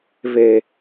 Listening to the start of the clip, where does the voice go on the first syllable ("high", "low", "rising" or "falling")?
high